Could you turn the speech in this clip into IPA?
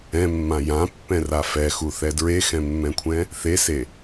ɛ̃mːã jãpːɛ̃ra fɛxuθɛ dɹexɛ̃mːɛ̃kʷʰɛ̃ | θese

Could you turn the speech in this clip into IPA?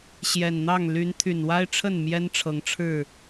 ɕjɛ˨˩nn̪ɑ˥˨ŋ ly˨˦n t̪ʰy˨˩nwa˦ɪ̯ʈ͡ʂʰə˥˨n mjɛ˦nʈ͡ʂʰɤ˨˦ŋ ʈ͡ʂʰɻ̩˥˨

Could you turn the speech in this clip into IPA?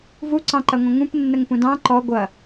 vuǀɑ̃ǃɐŋʷɐ̃ ŋũpnːəŋpũd ɑ̃ ǃɔ ɡʷɐ

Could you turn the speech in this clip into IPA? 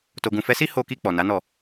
to˧ɡũ˧fɛ˦ si˦ ho˧ki˧ k͡pɔ˨na˨˦ nɔ˦˨

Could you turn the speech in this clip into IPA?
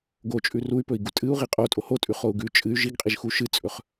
ɡot͡ʃʼʉ ruy̯pɵi̯ ɡutʼɨu̯ʁi qʼo tʼohotʼʉ χou̯ɡʉ t͡ʃʼɨy̯ ʒiɡqʼiʒxu ʃɨt͡sʼɵχ

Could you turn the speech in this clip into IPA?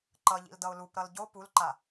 ǃʌʎḭl dʌʊ̯lupɾʌl ɟo pulǃa

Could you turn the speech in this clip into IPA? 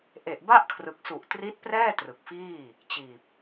ʔe˨˩ʔba˥˩ʔkʰrɯ˨˩k̚su˨˩ʔ tri˦˥t̚prɛː˥˩ trɯ˨˩k̚fiː˥˩ | t͡ɕiː˨˩p̚

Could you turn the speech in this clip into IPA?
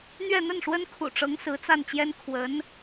n̪ɥɛ˥˧n̪ə˥˩nʂwə˥n kʰṵ˨˩ʈ͡ʂɤ˧˥ŋ sɹ̩˧˥t͡sa˥˩n t͡ɕjɛ˥n kʰwə˧˥n

